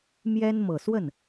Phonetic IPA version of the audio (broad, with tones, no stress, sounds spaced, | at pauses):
m j ɛ˥ n m ɤ˨˩ s w ə˥˩ n